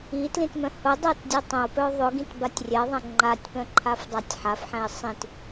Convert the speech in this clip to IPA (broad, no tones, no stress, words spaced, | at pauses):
itlĩtmœ̃ hʊdˤɤt dʲœtˤə̃ʊ̯pœ ðˤʊɡĩt batʲrʲɛðˤɛ̃ ŋ͡ǃatʲpœ̃ǃʰaf dˤatʲħafħɛ̃ɪ̯ sˤĩt